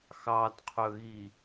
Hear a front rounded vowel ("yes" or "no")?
no